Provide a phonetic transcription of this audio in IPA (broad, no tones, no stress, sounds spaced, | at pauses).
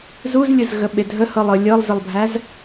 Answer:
z u z lʲ ɯ z ɣ ə ɓ e dʱ ə h ɤ lˠ ɤ lʲ ɤ lˠ z ə lˠ bʱ æ z